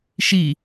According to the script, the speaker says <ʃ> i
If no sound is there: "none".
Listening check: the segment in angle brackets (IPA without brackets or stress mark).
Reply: ʃ